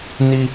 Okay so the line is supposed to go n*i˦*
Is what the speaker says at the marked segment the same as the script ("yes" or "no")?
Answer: yes